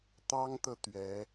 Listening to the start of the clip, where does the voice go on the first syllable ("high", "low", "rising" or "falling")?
high